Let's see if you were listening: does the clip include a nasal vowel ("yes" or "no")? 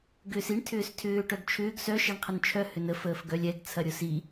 no